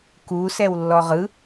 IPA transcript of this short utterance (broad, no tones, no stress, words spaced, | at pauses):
ku sɛwlːɔʁɯ